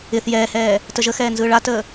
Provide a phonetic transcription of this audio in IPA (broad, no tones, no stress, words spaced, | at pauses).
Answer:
ɪθ jɛːhɛː | təʒəxɛː nzɯːɭatəː